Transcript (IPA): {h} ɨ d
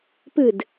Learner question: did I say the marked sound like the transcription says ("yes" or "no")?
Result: no